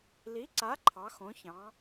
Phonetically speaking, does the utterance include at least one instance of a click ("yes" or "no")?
yes